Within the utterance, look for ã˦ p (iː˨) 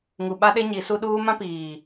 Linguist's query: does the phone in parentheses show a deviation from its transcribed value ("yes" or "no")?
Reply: no